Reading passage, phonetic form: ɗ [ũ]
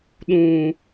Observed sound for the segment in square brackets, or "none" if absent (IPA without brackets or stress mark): ũ